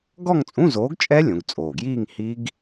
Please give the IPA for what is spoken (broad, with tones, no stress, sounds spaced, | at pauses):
ɡ ɔ˥˧ ŋ t͡sʼ ũ˧˥˧ z oː˨˥ ɡ t͡ʃʼ ɛ˦˥ lʲ õ˩˧ ɡ t͡sʼ oː˨˩ ɡ j iː˥˧ ŋ h i˦˥ ɡ